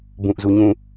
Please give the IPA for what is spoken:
b ũ ʔ z u ɲ ũ

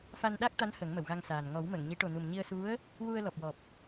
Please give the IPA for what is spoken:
f a˧ n ɗ a˦˥ k̚ t̪ a˧˥ n h ə˨˩˦ ŋ m ə˨˩˨ w ɣ a˧ ŋ s aː˨˩ n ŋ ɔ˨˩˦ w m ə˨˩˨ ŋ ɲ i˨˩˦ ʈ o˨˩ n u˨˩ m ɲ i˧ ə̯ s u˧˥ ə̯ | w u˧ ə̯ l ɔ˨˩ p̚ w ɔ˨˩ p̚

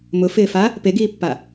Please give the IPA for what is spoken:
m ʊ f ɪː f a | p e ɡ iː pː a

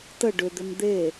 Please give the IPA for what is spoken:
t ə ɖ ʏ d̪ ʏ m d̪ e

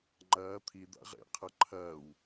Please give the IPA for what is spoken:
ŋ͡ǃ ɐː t̪ʰ i d̪ a̰ ʁ ḛ qʰ ɐ ǃʰ ɐː w

